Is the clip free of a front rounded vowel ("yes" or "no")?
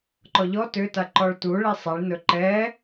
no